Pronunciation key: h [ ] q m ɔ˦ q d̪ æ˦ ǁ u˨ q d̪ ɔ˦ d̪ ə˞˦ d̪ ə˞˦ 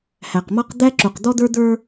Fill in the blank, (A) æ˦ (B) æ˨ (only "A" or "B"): B